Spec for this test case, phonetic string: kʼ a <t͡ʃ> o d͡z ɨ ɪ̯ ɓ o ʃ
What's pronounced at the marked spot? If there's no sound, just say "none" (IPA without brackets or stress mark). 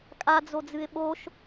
d͡z